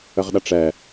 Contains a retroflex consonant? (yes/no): yes